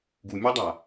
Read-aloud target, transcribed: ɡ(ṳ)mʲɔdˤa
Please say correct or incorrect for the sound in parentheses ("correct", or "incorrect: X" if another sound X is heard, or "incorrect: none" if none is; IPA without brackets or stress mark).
incorrect: u